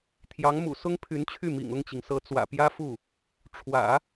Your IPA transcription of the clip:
t̪ʰ j ɑ˧˥ ŋ m ṵ˨˩ s ʊ˥ ŋ pʰ y˧˥ n t͡ɕʰ y˥˩ m ḭ˨˩ ŋ ʊ˥˩ ŋ t͡ɕ i˩ ŋ s ɤ˧˥ t͡s w ä̰˨˩ p j ä˥ f u˥˩ | ʈ͡ʂʰ w ä̰˨˩˦

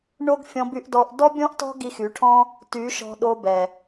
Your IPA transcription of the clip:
ɳ o˦ ɡ fʲ ɔ̃˧ b y˧ ʔ d ɔ˧ ʔ d ɔ˦ bʲ ɔ̃˦ ʔ t ɔ̤˦ ɡ i˧ x y˨˦ ʈʰ ɔ̃˦ | t y˨˦ ʃ ɔ̤˧ ɗ o˦ b ɛ˨

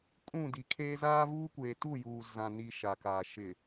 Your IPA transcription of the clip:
kʼ ũ˦˨ d i˨ kʰ eː˦ z aː˦ v uː˦ kʷ eː˨ t u˦˨ j uː˨ z ã˨ n i˨ ʃ a˨ k aː˨ ʃ ɪ˨

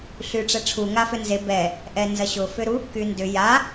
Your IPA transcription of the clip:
ɬ y ʈ͡ʂ ɛ ʈ͡ʂʰ u ŋ a f ʏ n z e b ɛ | ʔ ɛ n z ɐ ɕ ʊ f ʏ ɾ u | k y n d ʏ j a

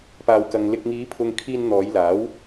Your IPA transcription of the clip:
p aː˨ w k ɐ˨ ŋ l ɪ˨ k̚ ŋ iː˨˧ pʰ ʊ˨ ŋ kʰ iː˧ n n̪ ɔː˨˧ j l aː˨˥ w

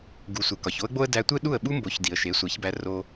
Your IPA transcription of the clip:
ɡ u˩ sʷ e˩ k ɒ˩ ç o˥ ə̯ ɡ͡b o˥ ə̯ d æ˧ tʷ e˥ ɗ u˥˩ ə̯ ɓ u˥ m b o˩˥ ç d i˩ ə̯ ʃ e˩˥ sʷ æ˩˥ ç b æ˧ r o˧

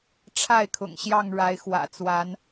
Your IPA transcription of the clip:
ʈ͡ʂʰ a˥˨ ɪ̯ kʰ ʊ̰˨˩ ŋ ɕ j ɑ˥˨ ŋ ɻ a˨˦ ɪ̯ x w ä̰˨˩ t͡s w a˨˦ n

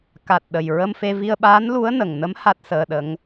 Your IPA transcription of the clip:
k a˨˩ t̚ ɗ ə˨˩ j ɹ ə˧ m f e˧ v i˧ ə̯ ɓ aː˧˥ n l u˧˥ ə̯ n ə˨˩ ŋ n ə˧˥ m h a˦˥ t̚ s əː˧ ɗ ə˧˥ ŋ

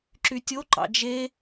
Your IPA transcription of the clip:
ǁ y tʲ o ǃ ɑ̰ d͡ʒ e

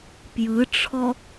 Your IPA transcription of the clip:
p j ɯ ʈ͡ʂʰ ɔ

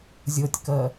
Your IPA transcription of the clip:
zʲ ɤ tʲ k ɜ

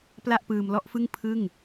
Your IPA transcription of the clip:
p l a˥˩ ʔ p ɯː˧ m l ɔ˥˩ ʔ f ɯ˥˩ ŋ pʰ ɯ˥˩ ŋ

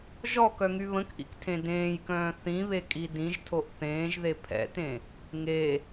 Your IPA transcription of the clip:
ʒ ɔ k œ ŋ y β ə̃ k ʔ ḭ k tʰ ẽ d ẽː j k œ̃ː θ ĩ β e kʼ i d ĩ ʒ tʰ o ʔ θ ẽː ʒ ð e pʰ ɛ̰ t ẽ | ŋ e

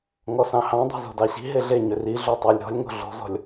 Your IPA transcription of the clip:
ŋ ɔ s ɑ̃ h ɑ̃ dˤ o̤ z o̤ d ɑ ɕ i̤ ɦ e ɮ e ɲ ʏ r i ɮ o tˤ æ lʲ ɾ ɔ̤ lʲ ŋ o̤ ɮ o̤ z ɔ̤ lʲ

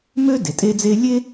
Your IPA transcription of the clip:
m ø˥ d e˩ tʼ e˦ d͡z e˦ lʲ e˥

